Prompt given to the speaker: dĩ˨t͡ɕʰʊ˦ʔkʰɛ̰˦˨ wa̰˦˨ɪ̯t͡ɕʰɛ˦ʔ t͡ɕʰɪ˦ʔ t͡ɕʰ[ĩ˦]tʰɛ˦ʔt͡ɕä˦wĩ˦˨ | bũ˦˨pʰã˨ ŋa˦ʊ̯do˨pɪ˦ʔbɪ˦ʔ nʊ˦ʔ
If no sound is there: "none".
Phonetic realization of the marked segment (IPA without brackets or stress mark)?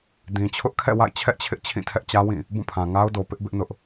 ĩ˦˨